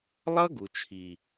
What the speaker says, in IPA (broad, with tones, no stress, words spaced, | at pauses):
lˠʌ˦ ɡu˨t͡ʃʰi˨